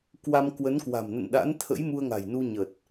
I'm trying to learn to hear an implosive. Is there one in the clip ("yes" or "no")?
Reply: yes